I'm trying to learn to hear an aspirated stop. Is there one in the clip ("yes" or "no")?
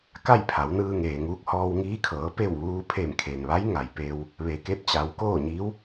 yes